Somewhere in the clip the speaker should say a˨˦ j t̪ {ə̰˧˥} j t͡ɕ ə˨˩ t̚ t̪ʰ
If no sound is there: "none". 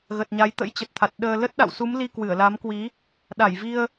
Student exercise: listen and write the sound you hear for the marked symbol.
ə̰˧˥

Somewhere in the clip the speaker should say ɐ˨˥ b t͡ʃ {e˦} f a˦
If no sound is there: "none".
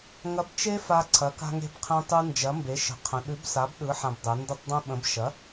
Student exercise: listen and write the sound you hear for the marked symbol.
e˦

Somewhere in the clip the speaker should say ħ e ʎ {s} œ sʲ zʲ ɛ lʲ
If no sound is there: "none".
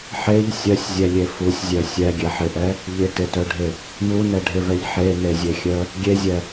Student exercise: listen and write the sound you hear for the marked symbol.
sʲ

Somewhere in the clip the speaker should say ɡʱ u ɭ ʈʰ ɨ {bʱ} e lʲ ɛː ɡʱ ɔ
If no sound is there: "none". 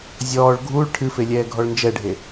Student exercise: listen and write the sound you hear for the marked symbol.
f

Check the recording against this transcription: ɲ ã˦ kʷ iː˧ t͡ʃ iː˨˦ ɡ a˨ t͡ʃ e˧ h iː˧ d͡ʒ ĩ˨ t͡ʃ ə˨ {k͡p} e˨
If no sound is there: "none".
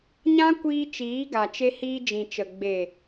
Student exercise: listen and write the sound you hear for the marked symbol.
ɡ͡b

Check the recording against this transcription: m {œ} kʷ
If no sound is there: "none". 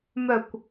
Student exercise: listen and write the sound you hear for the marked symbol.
œ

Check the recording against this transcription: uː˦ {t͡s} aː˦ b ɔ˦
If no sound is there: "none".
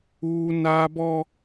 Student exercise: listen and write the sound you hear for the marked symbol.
n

